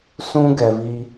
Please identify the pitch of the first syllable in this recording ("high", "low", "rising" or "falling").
high